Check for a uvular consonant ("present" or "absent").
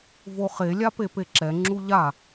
present